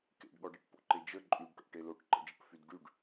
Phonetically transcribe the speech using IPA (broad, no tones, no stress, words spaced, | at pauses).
kḛɖɠɔɖeʈ po̰ǃed͡ʒə ǃʼyɖʈo̰ʈe loʈǃə̰d͡ʒəʈfyd ɖyɖ